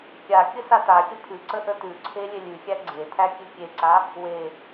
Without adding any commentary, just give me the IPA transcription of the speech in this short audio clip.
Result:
kʲa kʲəsataxʲə pʰʉǀə ʔətʉǀʰe lʲelʲʉxʲæ ɡ͡ǀetʰæ kʲʉkʲeǀa | we

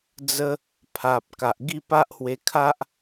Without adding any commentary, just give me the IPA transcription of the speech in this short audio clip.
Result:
d͡zə˦ | pʰa˨p̚ ka˨ʔɡi˥˧pa˦ʔhwe˧ kʰa˦ʔ

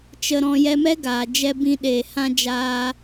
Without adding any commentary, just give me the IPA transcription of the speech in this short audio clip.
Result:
t͡ʃə˨ɾɔ̃˨ jɛ˧mɛ˦ɡaː˨ d͡ʒɛ˧ bĩ˧ ɗeː˨hã˧ d͡ʒaː˧

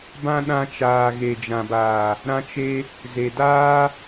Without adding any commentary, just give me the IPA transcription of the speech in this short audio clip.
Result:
bã˦ɗã˧t͡ʃaː˨ ɣe˨d͡ʒã˨baː˨ | ɾã˦t͡ʃe˦ | ze˨daː˦

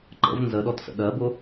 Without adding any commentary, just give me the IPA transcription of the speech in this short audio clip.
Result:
ǃə̰v nzəɗɔtsə̰ ɗɜbʊ

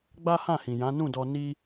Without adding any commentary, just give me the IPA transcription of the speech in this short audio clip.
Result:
ɡ͡ba˦hã˦˨hĩ˨jã˨˦ nũ˦˨dɔ˧ ni˦

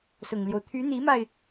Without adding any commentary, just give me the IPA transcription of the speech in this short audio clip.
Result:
sʊ˨˩ŋljo˦ʊ̯ t̪ʰy˧˥n̪i˧˥ma˧ɪ̯

